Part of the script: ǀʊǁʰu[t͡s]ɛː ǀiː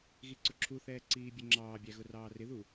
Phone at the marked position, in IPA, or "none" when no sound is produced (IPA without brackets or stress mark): θ